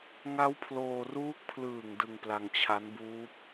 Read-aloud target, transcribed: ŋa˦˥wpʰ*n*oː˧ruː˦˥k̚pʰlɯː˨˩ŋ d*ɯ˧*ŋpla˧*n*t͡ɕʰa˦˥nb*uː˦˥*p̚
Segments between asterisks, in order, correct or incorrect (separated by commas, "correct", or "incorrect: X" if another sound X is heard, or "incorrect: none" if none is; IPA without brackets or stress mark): incorrect: l, correct, incorrect: ŋ, correct